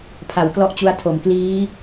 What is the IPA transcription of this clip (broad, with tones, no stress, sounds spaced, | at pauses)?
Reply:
pʰ a˩˦ w k l ɔ˦˥ ʔ t͡ɕ u˧ a̯ tʰ o˨˩ m k l iː˦˥